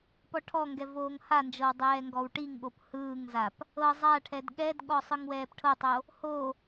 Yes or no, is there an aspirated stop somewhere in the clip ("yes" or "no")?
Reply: yes